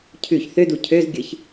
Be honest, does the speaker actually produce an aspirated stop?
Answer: yes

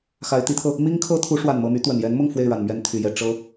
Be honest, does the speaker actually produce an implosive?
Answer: no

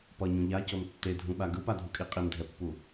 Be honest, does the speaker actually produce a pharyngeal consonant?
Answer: no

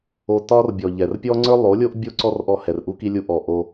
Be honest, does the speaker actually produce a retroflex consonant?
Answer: no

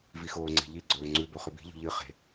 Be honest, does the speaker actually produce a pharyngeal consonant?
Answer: no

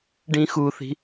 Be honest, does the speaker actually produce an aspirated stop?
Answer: no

